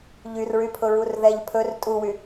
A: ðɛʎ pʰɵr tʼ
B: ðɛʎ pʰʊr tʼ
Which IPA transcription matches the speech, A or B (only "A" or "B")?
A